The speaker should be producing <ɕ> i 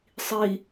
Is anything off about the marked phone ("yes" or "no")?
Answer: yes